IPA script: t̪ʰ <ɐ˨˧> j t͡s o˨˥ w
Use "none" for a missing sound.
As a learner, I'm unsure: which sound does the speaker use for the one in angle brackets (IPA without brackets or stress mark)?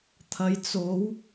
ɐ˨˧